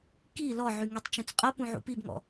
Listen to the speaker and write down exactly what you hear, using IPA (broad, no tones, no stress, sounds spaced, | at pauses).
k i l ɔ ʕ y ŋ i tˤ t͡ʃ ũ t͡s qʼ ʌ p ũ ʕ ṵ p i b ŋ ɔ̰